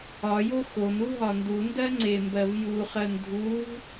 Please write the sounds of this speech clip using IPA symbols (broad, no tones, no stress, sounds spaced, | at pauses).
ɒ j o x o n u ɦ ɒ n d u n d ɜ ŋ͡ǀ e m b ɜ v j u χ ɜ n dʱ u v